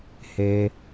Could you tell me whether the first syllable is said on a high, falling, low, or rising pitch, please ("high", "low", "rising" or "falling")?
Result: low